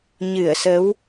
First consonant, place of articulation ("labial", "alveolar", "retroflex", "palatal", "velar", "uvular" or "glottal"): palatal